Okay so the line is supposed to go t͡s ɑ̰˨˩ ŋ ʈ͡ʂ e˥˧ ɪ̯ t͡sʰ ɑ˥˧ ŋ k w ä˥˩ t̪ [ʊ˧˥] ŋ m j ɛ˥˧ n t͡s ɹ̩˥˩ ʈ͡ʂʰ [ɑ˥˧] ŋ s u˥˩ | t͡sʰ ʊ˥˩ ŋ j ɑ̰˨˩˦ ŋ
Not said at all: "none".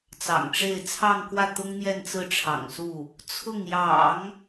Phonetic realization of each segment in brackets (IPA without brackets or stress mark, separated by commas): ʊ˥, ɑ̰˨˩